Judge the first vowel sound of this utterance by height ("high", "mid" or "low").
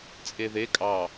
mid